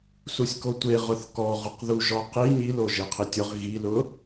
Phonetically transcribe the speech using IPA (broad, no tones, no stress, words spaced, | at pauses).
susʲkotʷe ʁʊθkɔʁʊqðu ʒɔqi ɲilo ʒeqʰitʲʊʁ ɣilʊ